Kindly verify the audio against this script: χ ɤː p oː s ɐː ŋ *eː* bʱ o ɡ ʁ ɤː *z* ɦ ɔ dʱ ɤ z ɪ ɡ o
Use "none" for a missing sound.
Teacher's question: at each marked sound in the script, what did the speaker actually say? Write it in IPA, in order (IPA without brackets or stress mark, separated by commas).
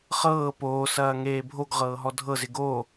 eː, none